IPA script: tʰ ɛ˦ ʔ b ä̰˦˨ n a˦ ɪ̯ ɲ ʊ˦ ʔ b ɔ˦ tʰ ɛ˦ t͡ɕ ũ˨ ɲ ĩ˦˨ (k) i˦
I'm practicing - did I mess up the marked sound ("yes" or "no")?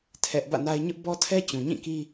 no